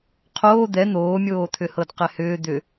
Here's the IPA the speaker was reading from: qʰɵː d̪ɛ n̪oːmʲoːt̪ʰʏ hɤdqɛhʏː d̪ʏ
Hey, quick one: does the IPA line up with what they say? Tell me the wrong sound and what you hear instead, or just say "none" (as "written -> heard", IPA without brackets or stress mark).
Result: ɵː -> oː